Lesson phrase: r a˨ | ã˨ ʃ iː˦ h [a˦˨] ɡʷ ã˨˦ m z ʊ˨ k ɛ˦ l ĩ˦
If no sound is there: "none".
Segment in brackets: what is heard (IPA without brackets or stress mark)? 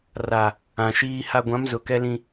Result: a˦